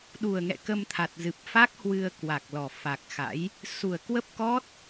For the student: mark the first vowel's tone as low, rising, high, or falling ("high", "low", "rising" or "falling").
low